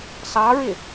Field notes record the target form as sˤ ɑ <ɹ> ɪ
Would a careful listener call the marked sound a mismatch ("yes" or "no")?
no